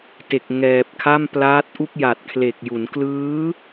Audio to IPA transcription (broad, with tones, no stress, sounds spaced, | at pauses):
t e˨˩ k̚ ŋ ɛː˨˩ p̚ kʰ a˥˩ m p l aː˦˥ t̚ ʔ u˥˩ k̚ j a˨˩ t̚ kʰ l e˨˩ k̚ j u˩˦ n k l ɯː˦˥